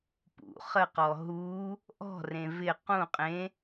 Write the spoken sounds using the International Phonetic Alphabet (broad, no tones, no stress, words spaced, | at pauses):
pṵ χəqɔ ɦu | ʔɔ̤rẽ vɪ qũ qʼẽ